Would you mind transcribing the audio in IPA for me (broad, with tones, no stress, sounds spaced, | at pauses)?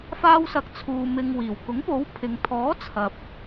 f aː˧ w s ɐ˨˥ k̚ t͡sʰ uː˨ m ɪ˨ ŋ w iː˨˩ w k ʊ˨˥ ŋ p o˨˥ w pʰ ɪ˨ ŋ t̪ʰ ɔː˨˥ t͡sʰ ɐ˨ p̚